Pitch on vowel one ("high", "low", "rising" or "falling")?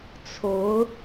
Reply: rising